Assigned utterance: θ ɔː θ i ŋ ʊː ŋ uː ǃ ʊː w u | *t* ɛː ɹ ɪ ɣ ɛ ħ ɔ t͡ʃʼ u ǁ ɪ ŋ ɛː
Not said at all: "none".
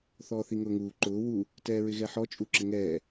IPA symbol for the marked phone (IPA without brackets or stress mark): t